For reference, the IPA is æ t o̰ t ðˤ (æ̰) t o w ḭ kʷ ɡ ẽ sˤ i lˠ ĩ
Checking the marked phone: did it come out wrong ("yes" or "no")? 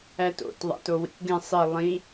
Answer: no